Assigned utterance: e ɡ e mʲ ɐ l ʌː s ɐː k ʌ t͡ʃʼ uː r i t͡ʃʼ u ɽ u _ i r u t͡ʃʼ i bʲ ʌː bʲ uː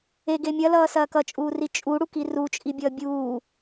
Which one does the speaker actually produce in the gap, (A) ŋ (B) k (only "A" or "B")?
B